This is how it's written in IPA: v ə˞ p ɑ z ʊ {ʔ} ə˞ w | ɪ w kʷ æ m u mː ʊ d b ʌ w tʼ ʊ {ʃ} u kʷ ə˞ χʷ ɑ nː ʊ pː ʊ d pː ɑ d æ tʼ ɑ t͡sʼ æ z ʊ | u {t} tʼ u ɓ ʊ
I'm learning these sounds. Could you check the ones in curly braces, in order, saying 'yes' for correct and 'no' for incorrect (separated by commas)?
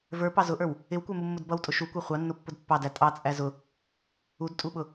yes, yes, no